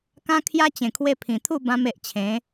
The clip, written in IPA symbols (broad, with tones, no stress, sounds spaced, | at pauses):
k ã˦ kʰ j a˦ t͡ɕ ẽ˨˩ kʰ w e˧ pʰ ĩ˨˩ t̪ʰ u˥˧ b ã˧ m e˨ ʔ t͡ɕʰ ẽ˨˦